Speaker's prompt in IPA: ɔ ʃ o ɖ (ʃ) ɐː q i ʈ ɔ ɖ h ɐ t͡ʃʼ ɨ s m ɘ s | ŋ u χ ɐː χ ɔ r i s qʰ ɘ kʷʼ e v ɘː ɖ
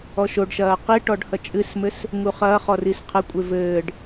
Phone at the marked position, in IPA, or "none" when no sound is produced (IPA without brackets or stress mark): ʃ